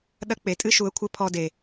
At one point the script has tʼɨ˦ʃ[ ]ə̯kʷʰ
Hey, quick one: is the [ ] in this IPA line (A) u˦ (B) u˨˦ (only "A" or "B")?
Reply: B